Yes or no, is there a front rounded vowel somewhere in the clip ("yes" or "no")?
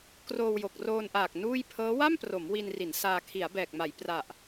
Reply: no